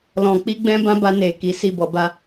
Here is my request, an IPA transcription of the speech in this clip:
l ɔ̃˨ k͡p i˧ ɡ͡b ɛ̃˦ b ã˦ b a˧ n e˨ k i˨˦ s i˦˨ b ɔ˧ b a˧

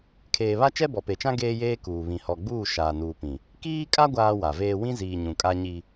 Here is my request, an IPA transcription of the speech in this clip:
kʰ eː˨ β a˦ t͡ʃ ɛ˦ b ɔ˨ p e˨ t͡ʃ ã˦ ɡ eː˦ j eː˦ k uː˨ β ĩ˨ h ɔ˨ ɡ͡b uː˦˨ ʃ aː˨ n uː˨ p ĩ˨ | k iː˦ kʼ a˦ ɡʷ aː˦ w a˨ v eː˦ w ĩ˦ z iː˨ ɲ ũ˨ kʼ a˦ ɲ i˦

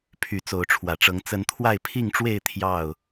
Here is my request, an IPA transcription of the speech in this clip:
pʰ y˨˦ t͡s o˨˦ ʊ̯ ʈ͡ʂʰ w ä˨˩ ʈ͡ʂ ɤ˨˦ ŋ t͡s ə˨˦ n t̪ʰ w a˥˨ ɪ̯ pʰ i˥˨ ŋ ʈ͡ʂ w e˥˨ ɪ̯ t̪ʰ j ɑ˥˨ ʊ̯

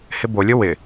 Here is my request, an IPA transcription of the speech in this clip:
h ɪ b o lʲ ʊ w ɪ

